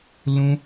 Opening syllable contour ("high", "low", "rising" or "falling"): high